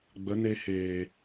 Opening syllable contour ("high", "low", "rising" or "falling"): rising